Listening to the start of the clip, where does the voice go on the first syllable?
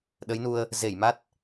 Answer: rising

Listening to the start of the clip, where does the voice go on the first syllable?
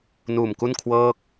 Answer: low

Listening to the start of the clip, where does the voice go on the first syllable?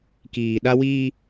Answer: low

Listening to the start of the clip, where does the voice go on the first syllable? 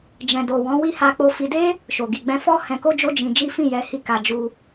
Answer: low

